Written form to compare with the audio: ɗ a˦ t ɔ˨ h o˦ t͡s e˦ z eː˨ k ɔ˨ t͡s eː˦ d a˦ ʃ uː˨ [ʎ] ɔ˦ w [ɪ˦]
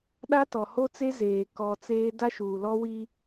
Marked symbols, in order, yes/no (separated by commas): no, no